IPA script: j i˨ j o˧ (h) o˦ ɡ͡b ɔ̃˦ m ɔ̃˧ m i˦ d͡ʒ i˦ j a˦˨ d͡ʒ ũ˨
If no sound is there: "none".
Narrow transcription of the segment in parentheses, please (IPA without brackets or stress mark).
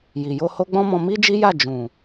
h